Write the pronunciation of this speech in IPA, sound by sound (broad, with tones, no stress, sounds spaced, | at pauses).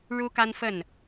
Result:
ɻ u˥ k a˥ n f ə˥˩ n